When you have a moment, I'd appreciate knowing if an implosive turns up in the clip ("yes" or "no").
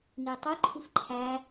no